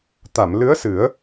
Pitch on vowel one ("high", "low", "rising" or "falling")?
low